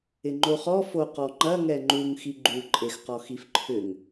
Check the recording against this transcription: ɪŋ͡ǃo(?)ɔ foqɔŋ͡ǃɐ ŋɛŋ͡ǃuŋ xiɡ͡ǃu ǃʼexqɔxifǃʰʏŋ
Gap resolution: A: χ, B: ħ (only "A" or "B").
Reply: A